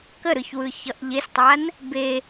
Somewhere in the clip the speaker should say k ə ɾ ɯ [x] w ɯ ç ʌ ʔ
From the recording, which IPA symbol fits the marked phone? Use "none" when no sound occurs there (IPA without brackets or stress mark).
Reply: ç